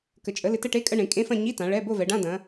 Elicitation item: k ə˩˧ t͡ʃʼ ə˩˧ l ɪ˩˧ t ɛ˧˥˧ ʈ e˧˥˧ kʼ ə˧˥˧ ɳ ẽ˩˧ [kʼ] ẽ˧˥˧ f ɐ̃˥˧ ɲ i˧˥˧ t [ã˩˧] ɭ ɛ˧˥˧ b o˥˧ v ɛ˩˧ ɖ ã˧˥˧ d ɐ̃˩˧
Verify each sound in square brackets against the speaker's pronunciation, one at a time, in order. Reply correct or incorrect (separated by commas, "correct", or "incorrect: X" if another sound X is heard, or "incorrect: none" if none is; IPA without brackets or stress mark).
correct, correct